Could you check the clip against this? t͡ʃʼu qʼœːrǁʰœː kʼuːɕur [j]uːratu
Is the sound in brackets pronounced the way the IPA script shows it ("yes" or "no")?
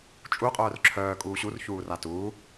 no